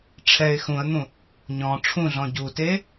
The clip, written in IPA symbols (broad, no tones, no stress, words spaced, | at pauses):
ʈ͡ʂʰɛɪ̯ xũə̯n̪ũ | ɲɔ̃ ʈ͡ʂʰũɮɔ̃ ɟute